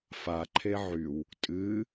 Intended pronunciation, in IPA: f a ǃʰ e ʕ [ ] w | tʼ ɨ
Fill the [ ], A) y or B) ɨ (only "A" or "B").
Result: A